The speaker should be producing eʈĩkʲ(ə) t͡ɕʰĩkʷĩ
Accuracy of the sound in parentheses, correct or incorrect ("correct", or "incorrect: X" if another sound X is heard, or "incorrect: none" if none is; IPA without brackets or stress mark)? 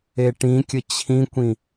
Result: correct